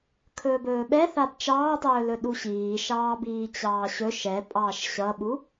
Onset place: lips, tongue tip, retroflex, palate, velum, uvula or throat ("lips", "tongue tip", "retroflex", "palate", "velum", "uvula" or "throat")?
velum